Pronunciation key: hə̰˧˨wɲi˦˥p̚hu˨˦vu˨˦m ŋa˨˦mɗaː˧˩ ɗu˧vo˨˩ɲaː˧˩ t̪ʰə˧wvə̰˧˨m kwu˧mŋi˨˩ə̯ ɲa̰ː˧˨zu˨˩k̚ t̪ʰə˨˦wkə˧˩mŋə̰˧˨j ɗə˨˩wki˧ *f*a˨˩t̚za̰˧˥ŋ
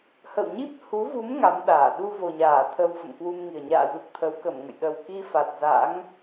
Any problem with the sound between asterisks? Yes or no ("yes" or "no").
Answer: no